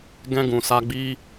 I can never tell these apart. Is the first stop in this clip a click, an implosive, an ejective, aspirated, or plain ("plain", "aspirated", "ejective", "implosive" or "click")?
plain